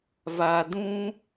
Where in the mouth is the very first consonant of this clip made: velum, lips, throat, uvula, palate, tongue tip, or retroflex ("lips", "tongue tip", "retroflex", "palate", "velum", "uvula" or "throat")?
lips